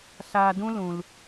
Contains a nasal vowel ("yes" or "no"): yes